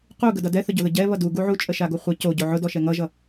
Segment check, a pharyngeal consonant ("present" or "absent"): present